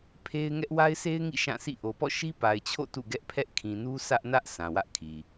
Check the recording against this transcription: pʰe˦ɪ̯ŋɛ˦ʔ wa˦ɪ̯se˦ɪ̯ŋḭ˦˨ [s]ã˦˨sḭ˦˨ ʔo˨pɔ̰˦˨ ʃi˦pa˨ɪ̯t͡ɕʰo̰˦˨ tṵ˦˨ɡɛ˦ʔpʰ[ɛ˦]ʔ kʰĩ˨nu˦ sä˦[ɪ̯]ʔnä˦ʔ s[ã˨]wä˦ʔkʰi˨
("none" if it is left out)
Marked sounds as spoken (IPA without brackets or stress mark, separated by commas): ʃ, ɛ˦, none, ã˨